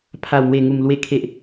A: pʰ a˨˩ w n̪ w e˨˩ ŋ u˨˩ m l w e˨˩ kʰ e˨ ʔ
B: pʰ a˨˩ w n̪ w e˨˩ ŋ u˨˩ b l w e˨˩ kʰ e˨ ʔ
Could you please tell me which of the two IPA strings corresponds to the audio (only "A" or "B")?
A